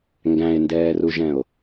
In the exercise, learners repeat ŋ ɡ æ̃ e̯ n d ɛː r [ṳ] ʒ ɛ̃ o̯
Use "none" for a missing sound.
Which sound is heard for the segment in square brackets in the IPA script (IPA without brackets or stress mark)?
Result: u